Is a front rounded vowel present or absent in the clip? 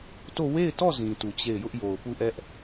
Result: absent